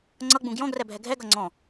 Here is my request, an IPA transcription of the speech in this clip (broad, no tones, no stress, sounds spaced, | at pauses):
ŋ͡ǀ ʌ ɡ͡b ũ ɡ j ɔ̃ ɡ r ɛ bʱ ɛ ɡʱ ɛ ɡ ʌ ŋ͡ǀ ɔ̃